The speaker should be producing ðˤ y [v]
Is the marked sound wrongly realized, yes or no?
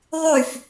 yes